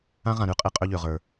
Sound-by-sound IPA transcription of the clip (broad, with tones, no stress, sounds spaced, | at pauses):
ã˦ ʁ ã˧ ɾ ʉ˦ qʼ e˧ qʼ ø˦ ʎ ø˨ ʁ ə˞˨